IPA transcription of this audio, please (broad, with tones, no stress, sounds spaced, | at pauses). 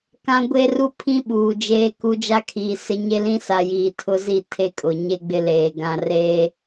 k ã˦ ɡʷ e˦ r u˦ pʰ ĩ˦ ɓ uː˨ d͡ʒ eː˦ k u˦ d͡ʒ a˦ kʰ iː˨ s ɪ˦ ɲ e˦ l ĩ˦ s a˨ j iː˨ tʰ ʊ˦ z i˦˨ tʰ e˦ kʼ ʊ˨ ɲ e˦ ɡ͡b ɪ˦ l eː˨ ɡ ã˨ r eː˦